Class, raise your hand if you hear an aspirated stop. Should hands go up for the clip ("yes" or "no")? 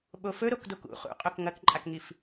no